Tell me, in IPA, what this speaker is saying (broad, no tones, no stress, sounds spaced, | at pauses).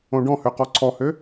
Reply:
õ ɖ ɔ̃ h ø q ɔ ǀʰ ɔ h ø